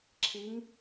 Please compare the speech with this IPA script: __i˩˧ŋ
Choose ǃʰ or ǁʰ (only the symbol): ǁʰ